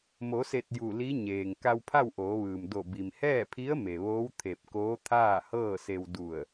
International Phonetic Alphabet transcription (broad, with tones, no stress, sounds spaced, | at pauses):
m o˩˧ s e˧˩ t̚ j u˧˩ l i˧˥ ɲ eː˩ ŋ k a˧ w pʰ a˥˨ w ʔ oː˩˧ ʋ ɯː˩ m d o˧˩ b i˩ m h ɛː˥˨ pʰ i˧˥ ə̯ m e˩ ʋ oː˧˥ w t̪ʰ e˧˩ p̚ k oː˧˥ t̪ʰ aː˥˨ h ɤː˥˨ s e˧ w d u˧˩ ə̯